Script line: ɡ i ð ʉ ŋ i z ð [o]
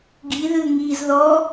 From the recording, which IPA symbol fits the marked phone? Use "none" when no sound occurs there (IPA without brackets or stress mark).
ɔ